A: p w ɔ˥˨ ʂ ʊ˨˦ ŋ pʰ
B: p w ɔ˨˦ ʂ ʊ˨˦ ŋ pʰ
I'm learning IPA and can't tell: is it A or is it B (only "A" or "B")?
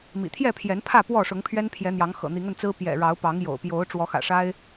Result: A